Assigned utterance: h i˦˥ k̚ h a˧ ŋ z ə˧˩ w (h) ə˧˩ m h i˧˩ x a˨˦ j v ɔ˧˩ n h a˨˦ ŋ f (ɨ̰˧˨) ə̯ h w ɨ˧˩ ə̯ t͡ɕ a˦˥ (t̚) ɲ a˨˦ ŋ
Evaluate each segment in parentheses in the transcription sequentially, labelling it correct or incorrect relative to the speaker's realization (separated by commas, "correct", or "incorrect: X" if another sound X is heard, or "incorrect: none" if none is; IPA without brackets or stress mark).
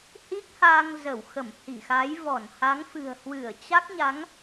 incorrect: x, incorrect: ɨ̤˨˩, incorrect: k̚